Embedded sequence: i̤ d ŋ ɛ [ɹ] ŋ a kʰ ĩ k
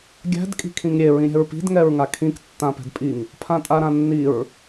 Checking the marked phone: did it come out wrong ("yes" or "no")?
no